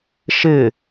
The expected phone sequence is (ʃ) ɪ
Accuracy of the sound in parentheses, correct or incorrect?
correct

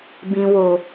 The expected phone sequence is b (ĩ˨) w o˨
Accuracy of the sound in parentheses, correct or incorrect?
correct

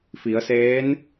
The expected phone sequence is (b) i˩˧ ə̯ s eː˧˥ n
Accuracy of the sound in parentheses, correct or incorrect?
incorrect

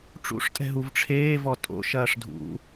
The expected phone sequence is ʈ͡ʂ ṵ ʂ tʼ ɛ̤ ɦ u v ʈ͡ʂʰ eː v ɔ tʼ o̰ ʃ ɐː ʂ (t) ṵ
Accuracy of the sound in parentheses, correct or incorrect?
incorrect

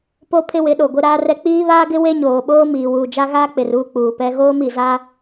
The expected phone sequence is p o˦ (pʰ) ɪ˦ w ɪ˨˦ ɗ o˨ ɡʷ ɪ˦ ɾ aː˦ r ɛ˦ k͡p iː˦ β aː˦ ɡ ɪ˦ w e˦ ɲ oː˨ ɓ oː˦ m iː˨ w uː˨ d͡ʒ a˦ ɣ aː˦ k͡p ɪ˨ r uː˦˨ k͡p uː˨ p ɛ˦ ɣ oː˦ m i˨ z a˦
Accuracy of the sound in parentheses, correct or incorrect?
correct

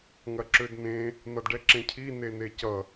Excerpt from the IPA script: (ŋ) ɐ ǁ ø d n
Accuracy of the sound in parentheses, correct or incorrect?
correct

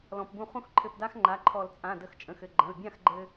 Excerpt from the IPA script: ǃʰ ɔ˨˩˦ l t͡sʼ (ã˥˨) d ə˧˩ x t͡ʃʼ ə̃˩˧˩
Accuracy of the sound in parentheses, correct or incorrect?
incorrect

